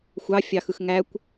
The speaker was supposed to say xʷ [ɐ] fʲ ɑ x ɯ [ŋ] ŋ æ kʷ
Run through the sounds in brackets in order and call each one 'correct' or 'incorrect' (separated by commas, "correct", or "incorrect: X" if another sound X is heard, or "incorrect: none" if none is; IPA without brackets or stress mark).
incorrect: ɑ, incorrect: x